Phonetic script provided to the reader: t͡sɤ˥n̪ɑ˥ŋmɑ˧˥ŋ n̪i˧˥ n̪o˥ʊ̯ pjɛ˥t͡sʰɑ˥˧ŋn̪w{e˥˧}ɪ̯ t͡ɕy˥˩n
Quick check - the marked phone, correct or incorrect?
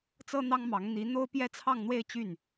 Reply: correct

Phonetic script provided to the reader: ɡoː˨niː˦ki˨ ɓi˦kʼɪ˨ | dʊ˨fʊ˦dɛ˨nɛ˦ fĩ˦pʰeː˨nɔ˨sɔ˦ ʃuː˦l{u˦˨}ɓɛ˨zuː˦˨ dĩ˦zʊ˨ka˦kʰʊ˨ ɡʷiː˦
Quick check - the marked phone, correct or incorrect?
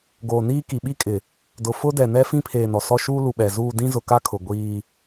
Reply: incorrect: u˨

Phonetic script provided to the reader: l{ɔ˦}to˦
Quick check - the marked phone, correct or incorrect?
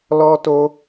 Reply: correct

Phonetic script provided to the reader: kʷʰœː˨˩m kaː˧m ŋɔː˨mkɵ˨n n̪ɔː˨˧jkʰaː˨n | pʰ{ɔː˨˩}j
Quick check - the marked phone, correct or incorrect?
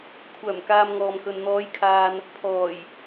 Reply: correct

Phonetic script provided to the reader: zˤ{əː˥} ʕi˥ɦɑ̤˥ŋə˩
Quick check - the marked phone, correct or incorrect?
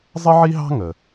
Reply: incorrect: ə˥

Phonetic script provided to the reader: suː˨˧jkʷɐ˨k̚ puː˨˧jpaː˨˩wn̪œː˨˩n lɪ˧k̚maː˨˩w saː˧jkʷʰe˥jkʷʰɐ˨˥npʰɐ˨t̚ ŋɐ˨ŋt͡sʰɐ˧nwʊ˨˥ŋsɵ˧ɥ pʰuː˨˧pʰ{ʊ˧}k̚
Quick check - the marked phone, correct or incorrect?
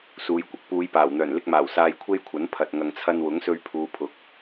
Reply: incorrect: ʊ˨˥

